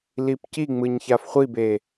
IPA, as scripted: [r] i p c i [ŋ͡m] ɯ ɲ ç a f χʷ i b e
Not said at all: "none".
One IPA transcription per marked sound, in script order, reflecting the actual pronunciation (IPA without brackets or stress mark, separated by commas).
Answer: l, ŋ͡m